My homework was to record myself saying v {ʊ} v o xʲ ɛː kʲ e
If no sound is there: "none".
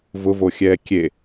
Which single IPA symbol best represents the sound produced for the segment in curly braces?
ʊ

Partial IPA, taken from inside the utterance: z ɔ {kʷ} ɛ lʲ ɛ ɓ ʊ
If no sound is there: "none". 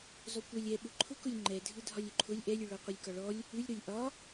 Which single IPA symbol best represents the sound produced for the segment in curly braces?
kʷ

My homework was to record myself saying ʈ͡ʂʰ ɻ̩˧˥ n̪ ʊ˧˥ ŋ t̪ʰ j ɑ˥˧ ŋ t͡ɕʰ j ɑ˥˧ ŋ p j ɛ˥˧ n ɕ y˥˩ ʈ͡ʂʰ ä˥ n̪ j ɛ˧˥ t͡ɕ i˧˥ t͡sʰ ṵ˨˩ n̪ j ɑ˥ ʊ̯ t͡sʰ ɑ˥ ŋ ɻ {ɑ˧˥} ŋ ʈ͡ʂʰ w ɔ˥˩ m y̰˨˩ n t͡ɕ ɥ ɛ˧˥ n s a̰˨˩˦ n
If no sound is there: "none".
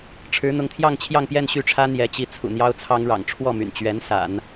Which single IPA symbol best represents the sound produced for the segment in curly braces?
ɑ̰˨˩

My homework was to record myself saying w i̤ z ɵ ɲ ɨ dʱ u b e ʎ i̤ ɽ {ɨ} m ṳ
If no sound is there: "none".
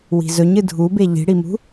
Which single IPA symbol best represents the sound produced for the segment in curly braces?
i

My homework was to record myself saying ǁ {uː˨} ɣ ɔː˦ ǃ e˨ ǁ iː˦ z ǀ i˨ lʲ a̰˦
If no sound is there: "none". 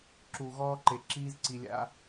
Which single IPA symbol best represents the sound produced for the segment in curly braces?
u˨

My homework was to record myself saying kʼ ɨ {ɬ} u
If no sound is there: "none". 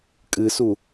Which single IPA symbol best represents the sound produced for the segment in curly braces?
s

